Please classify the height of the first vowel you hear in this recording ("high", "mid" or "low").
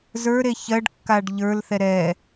mid